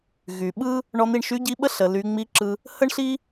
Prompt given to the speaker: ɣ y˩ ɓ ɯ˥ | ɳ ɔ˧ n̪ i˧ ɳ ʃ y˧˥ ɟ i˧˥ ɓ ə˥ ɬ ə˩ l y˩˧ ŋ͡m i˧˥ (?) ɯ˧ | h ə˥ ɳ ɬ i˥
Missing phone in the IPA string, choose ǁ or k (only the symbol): ǁ